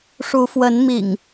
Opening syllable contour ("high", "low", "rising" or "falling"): rising